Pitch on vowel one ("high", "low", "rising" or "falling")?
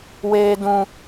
high